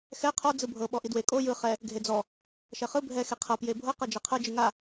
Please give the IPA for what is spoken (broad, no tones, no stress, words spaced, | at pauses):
xɛ qʰɔ d͡zɯbʱɤ ɓɔʔidwe kʼo jɯ χɛ | ɡʱed͡zɔ | ʃɛχɯ bʱɛ xeqʰɤ pjebʱɤ qɤd͡ʒɛqʰɤ d͡ʒɯŋa